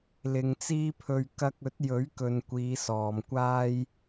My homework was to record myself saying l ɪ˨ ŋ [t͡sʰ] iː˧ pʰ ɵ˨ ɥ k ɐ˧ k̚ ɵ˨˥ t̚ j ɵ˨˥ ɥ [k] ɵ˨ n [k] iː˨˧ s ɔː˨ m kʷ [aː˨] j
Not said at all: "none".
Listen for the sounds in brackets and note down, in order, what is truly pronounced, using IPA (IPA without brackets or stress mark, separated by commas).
t͡s, k, kʷ, aː˥